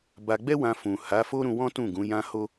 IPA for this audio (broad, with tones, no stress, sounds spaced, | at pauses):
b a˧ ɡ͡b ɛ˦ w ã˧ f ũ˨ h a˨˦ f o˦ ɾ ũ˧ w ɔ̃˦ t ũ˦˨ ɡ ũ˨˦ j ã˦ h o˦